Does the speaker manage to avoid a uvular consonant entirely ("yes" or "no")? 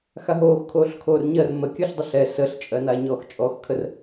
yes